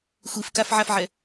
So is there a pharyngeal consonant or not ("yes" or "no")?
yes